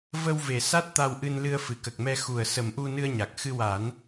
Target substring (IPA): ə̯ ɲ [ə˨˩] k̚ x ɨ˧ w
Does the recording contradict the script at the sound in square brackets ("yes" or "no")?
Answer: yes